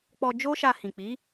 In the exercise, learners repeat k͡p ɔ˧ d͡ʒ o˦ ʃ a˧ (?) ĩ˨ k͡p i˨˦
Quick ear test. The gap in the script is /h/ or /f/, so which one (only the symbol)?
h